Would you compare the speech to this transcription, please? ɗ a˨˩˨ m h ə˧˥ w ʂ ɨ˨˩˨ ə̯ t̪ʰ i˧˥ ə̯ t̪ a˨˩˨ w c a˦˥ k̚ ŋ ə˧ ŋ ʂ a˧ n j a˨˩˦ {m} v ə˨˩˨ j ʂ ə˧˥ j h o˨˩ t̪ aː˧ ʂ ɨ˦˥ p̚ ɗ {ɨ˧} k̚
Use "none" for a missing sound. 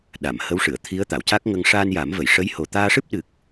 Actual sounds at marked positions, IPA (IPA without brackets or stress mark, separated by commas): m, ɨ˨˩